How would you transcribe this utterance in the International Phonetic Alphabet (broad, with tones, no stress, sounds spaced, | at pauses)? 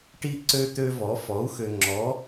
ʈ i˦ ǀ ø˦ t̪ ø˦ v ɔ˩˥ f ɔ˩˥ u̯ x ø˨ ŋ͡ǁ ɔ˩˥